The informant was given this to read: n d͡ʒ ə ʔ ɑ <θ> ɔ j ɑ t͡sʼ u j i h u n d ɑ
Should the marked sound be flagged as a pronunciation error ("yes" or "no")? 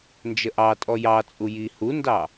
yes